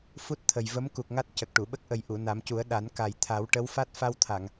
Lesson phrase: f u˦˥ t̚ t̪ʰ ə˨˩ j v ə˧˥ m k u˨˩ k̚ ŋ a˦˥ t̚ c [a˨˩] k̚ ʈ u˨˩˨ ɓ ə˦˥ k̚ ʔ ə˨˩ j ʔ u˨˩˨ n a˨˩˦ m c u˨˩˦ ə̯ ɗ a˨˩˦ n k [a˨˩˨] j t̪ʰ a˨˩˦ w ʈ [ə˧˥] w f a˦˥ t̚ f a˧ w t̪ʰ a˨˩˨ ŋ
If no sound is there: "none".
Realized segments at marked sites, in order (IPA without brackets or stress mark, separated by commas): ə˨˩, a˨˩, ə˧˥